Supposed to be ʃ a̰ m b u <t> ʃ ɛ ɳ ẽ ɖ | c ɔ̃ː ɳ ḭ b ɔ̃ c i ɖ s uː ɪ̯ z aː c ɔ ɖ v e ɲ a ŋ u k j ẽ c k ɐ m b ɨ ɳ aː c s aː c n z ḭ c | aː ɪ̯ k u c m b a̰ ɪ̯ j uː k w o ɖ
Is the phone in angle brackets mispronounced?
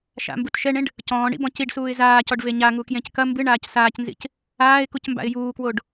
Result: no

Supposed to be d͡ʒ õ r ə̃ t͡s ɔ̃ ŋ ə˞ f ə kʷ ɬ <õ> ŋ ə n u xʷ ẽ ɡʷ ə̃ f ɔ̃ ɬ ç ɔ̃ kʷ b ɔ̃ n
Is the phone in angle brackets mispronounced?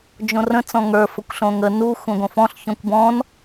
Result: no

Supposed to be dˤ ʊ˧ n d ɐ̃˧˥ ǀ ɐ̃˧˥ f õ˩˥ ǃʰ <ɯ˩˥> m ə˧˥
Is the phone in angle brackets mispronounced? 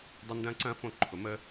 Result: yes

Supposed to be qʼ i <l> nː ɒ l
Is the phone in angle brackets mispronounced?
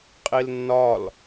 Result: no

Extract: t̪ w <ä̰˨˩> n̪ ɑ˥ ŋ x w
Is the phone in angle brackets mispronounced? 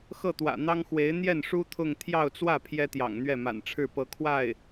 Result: no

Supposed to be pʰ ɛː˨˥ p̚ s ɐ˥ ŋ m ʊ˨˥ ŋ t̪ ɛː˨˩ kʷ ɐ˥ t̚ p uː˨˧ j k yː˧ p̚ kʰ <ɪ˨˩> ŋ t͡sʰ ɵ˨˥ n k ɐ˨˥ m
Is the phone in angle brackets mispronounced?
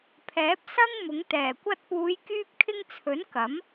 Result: yes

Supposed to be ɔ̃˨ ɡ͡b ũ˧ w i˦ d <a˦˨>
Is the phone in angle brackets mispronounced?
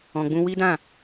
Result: yes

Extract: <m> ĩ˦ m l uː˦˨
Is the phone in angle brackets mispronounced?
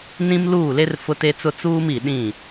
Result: yes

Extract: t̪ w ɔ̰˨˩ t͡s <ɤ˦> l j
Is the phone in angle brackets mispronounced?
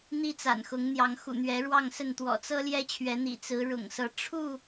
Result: no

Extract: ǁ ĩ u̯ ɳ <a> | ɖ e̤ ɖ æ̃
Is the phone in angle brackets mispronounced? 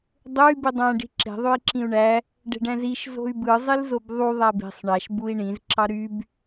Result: yes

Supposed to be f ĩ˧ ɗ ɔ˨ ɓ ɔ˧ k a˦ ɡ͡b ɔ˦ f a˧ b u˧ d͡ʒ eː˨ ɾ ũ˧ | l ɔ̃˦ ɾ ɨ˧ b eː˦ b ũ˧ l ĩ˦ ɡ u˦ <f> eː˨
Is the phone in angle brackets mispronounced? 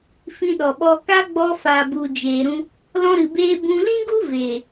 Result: yes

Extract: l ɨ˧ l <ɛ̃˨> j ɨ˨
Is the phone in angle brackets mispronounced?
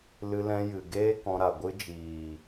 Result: yes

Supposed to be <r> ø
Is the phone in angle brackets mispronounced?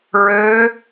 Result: yes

